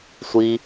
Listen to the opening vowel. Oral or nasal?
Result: oral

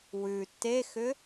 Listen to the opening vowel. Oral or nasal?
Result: oral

